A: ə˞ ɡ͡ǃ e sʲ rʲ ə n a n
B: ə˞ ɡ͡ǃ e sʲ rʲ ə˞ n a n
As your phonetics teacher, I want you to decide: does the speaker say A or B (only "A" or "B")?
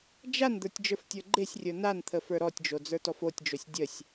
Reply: B